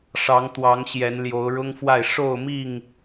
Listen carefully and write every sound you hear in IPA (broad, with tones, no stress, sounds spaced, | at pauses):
ʂ ɑ˨˦ ŋ t̪ w ɑ˨˦ ŋ ɕ j ɛ˨˦ n l j o˨˦ ʊ̯ ɻ ʊ˦ ŋ f w a˥˨ ɪ̯ ʂ o˥˨ ʊ̯ m i˥˨ ŋ